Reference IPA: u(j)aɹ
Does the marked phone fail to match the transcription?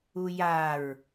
no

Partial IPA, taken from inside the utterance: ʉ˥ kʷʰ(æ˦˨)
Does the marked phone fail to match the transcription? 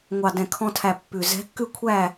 no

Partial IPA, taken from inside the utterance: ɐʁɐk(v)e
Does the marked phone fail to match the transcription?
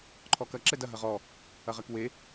yes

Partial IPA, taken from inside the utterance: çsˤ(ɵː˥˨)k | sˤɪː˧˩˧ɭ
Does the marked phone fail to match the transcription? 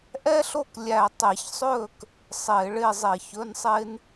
no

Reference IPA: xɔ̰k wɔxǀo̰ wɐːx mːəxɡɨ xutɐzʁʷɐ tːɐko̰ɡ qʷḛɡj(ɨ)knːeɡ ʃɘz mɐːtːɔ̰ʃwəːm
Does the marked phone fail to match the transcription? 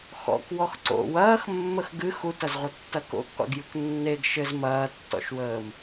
no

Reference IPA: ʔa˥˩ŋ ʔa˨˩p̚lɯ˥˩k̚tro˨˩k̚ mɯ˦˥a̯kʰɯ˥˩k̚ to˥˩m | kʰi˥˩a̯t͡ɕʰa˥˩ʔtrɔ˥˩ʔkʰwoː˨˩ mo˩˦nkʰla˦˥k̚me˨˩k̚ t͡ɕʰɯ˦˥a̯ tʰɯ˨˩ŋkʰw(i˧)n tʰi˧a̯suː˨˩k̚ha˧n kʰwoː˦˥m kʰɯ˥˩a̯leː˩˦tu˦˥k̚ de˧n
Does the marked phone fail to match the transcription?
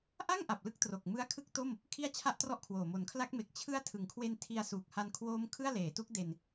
yes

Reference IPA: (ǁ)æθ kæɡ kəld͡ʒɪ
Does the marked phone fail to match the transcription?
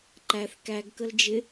yes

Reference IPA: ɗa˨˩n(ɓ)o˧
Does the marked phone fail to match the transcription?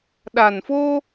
yes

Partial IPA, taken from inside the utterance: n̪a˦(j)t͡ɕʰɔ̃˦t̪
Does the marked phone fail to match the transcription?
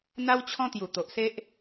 yes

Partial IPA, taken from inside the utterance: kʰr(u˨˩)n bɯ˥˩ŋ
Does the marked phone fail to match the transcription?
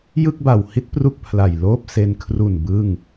no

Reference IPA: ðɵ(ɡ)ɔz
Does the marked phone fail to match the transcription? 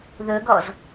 no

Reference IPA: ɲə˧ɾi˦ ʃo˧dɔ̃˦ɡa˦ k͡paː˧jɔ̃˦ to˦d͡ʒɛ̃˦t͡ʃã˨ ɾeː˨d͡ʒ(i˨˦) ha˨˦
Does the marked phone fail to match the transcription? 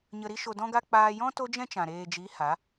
no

